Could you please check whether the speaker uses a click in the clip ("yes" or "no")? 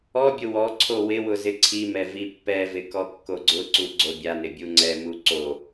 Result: yes